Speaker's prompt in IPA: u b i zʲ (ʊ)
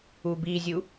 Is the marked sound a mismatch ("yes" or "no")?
yes